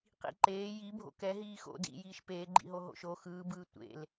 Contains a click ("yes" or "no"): yes